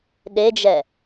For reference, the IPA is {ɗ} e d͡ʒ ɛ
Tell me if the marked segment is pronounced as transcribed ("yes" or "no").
yes